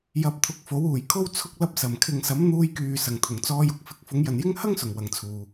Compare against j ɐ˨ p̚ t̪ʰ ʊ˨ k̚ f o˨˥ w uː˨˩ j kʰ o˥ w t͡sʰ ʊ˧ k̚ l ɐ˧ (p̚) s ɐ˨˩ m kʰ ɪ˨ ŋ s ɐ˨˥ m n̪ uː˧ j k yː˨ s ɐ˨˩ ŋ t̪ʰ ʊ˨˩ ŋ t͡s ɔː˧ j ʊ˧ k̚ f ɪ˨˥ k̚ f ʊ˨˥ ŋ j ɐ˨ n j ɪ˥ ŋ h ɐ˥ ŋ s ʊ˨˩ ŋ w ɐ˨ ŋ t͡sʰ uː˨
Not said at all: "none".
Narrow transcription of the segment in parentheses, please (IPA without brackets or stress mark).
p̚